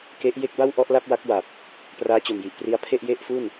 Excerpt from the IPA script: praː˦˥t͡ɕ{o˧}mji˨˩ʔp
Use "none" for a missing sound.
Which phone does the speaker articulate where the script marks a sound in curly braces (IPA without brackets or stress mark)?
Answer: o˨˩